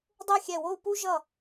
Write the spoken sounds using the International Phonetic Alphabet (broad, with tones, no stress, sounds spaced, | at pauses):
dˤ e˥˧ xʲ ɛ˧˩ w o˥˧ u̯ p u˥ ʒ ʌ˧˩